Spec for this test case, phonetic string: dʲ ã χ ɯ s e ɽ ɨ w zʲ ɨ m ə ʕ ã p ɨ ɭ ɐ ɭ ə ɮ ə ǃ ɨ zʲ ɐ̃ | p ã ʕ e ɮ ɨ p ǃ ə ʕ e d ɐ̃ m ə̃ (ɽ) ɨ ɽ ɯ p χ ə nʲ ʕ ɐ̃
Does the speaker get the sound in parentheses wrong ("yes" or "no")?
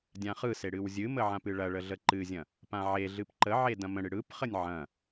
no